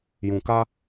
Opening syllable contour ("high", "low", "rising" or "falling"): low